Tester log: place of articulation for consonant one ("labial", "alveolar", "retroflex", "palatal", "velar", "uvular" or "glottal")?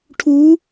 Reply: retroflex